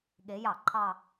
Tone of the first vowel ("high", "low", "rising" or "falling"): rising